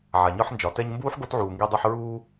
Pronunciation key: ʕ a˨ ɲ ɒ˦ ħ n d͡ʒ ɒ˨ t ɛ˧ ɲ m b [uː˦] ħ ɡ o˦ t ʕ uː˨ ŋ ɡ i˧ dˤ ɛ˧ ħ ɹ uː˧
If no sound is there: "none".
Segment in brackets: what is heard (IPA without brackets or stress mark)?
uː˦